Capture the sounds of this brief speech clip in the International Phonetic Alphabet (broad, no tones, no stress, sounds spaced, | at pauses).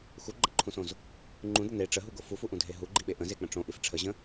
x u ɡ͡ǃ ə̃ ǃʰ ũ s õ z | ŋ͡ǃ ũ d ə n e ʈ͡ʂ ə ɦ u ɡ o f u f u ʔ ũ dʱ e ɦ u ɡ͡ǃ i ɓ e ʔ ə̃ z e k͡p ə̃ ʈ͡ʂ õ ʔ i f ʈ͡ʂʰ ə ʑ ə̃